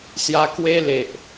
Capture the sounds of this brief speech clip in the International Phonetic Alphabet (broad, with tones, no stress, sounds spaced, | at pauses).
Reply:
s j a˧ k w e˧ l e˨ ʔ